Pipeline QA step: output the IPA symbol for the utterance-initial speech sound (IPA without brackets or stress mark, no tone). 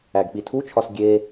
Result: æ